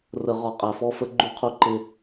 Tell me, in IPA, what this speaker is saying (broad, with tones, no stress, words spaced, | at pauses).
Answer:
rə˨ʁɒ˨ qʼæ˨fɔ˦fə˦ ɡ͡ǃu˦qʰu˦ǃɪ˦